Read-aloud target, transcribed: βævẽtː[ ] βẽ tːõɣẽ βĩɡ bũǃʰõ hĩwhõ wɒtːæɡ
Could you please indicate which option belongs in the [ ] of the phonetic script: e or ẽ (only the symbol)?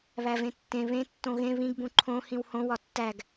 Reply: ẽ